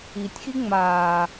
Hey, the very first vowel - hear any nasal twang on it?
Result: no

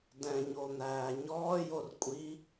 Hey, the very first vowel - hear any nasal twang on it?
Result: yes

